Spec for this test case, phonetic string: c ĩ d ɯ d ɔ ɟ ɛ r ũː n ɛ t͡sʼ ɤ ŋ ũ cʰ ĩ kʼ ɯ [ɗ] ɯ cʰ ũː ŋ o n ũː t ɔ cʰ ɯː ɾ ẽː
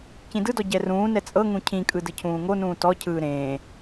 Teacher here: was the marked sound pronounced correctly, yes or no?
no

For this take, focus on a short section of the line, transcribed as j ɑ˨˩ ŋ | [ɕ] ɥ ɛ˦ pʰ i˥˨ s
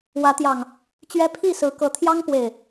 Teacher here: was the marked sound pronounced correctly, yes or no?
no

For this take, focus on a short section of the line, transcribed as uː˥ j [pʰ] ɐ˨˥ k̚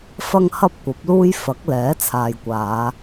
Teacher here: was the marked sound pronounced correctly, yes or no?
no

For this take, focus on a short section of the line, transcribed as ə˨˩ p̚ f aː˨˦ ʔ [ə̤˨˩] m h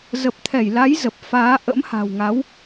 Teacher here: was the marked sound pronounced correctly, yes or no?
no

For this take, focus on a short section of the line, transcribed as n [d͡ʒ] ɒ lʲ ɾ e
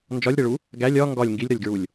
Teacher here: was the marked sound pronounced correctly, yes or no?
yes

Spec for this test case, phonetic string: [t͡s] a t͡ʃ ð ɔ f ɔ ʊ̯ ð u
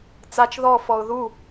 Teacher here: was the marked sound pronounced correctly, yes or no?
yes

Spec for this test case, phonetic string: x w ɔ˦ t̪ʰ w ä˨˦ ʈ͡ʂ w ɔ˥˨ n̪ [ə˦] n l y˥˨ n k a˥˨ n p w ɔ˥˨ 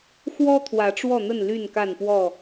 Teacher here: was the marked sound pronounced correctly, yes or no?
no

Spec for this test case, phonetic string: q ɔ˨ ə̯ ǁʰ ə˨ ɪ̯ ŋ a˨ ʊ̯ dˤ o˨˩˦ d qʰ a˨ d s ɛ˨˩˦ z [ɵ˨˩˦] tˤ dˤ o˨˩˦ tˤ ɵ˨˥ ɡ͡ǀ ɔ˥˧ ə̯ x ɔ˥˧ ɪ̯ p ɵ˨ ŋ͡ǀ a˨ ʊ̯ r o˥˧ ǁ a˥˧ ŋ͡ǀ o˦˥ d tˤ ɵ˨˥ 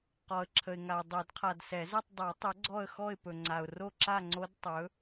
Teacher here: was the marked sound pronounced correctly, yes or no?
no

